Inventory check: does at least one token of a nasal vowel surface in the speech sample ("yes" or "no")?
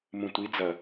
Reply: yes